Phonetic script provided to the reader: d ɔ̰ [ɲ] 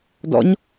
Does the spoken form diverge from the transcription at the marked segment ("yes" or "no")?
no